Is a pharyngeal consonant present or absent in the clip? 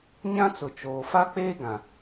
absent